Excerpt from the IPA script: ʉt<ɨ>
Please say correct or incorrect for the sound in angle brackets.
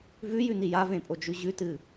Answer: correct